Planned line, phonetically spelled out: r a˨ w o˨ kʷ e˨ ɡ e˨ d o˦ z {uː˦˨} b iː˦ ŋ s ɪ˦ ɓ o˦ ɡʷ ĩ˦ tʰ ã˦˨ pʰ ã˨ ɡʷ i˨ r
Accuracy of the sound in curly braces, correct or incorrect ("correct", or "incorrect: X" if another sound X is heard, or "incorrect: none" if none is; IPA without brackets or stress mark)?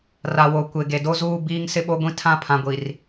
correct